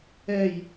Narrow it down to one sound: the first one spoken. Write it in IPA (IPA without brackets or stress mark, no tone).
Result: ɛ